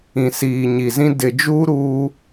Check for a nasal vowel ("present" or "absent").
present